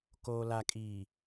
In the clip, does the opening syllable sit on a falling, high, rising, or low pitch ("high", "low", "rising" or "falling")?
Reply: low